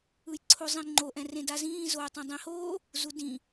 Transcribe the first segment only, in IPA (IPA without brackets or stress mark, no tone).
ɯ